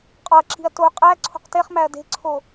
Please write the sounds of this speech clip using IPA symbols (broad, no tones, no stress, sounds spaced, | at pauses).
qʼ ɒ ɐ̯ ǁ i̤ ɐ̯ t o qʼ æ ǀʰ o̤ q t e χ m æ ɐ̯ d e̤ ǀʰ o